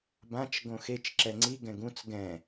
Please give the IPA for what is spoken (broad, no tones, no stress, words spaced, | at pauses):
bãt͡ʃ ɡõxet͡ʃ ǁɛŋ͡ǀi ɡɛ̃ɡũt͡s ɡɛ̃